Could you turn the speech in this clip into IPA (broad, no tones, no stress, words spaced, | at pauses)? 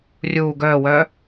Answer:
rʲuː ɡœːwœː